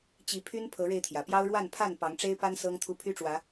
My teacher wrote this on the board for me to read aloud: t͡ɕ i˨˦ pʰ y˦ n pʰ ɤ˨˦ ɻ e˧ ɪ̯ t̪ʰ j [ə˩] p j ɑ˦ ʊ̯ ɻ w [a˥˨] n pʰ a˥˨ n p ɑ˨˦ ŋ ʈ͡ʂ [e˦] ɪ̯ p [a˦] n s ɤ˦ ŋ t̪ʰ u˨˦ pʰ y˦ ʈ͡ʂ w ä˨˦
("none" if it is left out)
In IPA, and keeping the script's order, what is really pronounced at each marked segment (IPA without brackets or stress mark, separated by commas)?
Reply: ä˩, a˥˨, e˦, a˦